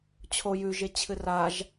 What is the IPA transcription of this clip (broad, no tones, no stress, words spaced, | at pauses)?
t͡ɕʰo jʉʒe t͡ɕʰɨraʒ